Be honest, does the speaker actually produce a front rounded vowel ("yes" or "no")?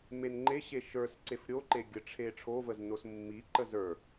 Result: no